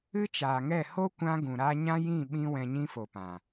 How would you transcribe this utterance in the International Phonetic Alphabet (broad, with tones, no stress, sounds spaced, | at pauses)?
ɨ˦ t͡ʃ aː˨ ŋ ɛ˦˨ h o˦ kʷ ã˧ ɡ ũ˨ ɾ a˧ ɲ ã˦ j ĩ˦˨ ɓ ĩ˦ w ɛ̃˧ ɲ ĩ˦ f o˨ p ã˨